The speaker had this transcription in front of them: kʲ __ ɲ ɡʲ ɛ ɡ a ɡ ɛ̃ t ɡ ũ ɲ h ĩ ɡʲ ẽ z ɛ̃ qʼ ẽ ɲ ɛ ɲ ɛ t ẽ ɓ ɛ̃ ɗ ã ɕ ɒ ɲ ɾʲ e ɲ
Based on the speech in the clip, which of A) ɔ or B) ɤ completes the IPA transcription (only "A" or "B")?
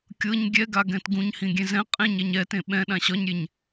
B